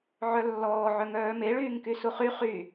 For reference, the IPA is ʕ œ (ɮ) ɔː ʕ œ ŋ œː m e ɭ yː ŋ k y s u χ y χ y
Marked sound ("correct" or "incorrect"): incorrect